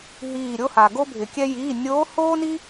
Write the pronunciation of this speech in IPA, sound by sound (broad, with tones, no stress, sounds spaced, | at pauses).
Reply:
ɦ iː˧˩ ɾʲ o˥ h a˩ ɡ o˥ bʱ ɪ˩ kʲ ɛ˥ j iː˩˧˩ nʲ oː˧˥ h oː˥ n i˥